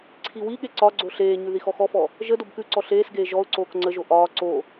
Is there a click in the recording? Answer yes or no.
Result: yes